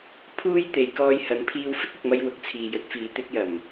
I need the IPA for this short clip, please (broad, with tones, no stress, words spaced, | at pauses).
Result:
pʰuː˥jt̪e˨˧j kɔː˧jhɐ˨˥n pʰiː˧wfɪ˥k̚ʊ˨k̚mɐ˧j wʊ˨k̚t͡sʰiː˨jɵ˨˥t̚fiː˨˥ t̪ɪ˨˥k̚jɐ˨˩m